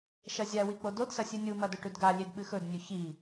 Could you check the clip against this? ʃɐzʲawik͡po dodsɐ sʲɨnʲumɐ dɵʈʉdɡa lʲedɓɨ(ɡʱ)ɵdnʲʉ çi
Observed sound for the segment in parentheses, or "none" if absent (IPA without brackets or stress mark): x